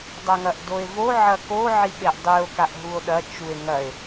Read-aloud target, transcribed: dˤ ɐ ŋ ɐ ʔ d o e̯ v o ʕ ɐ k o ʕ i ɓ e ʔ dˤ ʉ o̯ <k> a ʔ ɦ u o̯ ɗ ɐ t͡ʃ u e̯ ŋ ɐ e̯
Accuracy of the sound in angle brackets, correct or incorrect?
correct